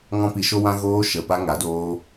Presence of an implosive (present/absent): absent